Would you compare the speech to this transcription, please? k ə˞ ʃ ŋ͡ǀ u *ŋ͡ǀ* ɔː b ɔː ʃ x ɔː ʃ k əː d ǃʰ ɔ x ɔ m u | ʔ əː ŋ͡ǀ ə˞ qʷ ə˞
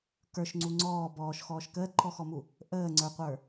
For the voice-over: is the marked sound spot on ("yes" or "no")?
yes